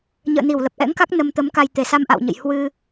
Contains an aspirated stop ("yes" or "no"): no